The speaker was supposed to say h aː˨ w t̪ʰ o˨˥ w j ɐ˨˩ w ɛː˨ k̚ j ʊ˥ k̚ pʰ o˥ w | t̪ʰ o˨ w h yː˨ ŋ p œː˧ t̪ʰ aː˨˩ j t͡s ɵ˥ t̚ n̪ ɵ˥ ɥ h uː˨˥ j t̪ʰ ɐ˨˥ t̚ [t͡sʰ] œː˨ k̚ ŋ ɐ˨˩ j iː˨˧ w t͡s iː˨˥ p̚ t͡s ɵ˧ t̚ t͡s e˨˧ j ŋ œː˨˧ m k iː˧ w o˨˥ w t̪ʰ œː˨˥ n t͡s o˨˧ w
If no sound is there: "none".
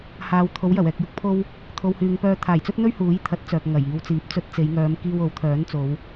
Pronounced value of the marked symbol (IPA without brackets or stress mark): t͡s